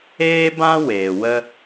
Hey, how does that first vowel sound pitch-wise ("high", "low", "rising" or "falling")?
high